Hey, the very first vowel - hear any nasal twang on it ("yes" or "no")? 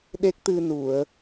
no